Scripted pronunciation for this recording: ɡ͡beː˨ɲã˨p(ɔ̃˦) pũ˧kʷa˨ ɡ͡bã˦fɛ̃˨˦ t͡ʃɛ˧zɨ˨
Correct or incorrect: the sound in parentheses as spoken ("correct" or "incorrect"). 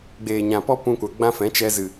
incorrect